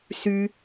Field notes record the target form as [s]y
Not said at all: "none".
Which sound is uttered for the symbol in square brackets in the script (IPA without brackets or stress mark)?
s